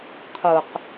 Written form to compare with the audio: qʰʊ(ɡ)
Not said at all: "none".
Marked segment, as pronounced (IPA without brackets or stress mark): q